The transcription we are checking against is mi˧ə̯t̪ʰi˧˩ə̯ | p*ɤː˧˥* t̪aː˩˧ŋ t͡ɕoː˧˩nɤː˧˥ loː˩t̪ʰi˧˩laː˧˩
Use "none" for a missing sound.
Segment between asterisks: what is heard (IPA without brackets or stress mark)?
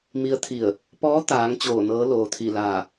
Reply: ɔː˧˥